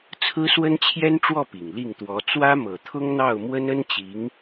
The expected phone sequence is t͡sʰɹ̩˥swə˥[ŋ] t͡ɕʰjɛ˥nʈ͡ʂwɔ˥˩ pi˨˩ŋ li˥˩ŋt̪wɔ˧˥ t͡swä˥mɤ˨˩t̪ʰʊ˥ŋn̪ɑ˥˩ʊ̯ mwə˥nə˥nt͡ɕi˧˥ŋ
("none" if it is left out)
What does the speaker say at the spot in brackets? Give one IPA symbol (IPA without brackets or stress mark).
n